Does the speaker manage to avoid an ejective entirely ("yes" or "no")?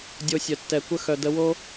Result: yes